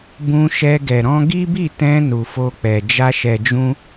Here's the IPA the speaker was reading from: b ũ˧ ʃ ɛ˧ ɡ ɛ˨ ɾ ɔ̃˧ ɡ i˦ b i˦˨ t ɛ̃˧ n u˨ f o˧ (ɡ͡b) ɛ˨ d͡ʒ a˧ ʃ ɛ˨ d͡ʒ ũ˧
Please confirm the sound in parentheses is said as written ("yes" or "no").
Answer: no